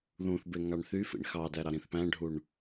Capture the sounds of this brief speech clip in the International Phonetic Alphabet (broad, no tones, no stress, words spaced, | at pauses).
ðũθbeŋɑɳ θyfḭɳ xɑdæɾɑɾĩθ pæ̃ɖʱuɳ